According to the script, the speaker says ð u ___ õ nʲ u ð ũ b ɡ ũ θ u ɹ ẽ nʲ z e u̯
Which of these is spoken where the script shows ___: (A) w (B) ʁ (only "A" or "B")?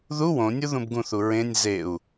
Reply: A